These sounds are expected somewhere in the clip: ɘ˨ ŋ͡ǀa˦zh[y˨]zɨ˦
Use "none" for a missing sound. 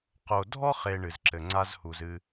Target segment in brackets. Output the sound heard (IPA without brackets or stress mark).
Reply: u˨